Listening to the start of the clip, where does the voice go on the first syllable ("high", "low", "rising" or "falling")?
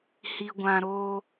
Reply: low